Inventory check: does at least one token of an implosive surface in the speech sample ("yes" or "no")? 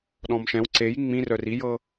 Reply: yes